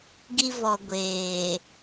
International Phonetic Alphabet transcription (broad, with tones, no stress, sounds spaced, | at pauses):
ɡ i˨ v ɔ˨ ɡʷ eː˨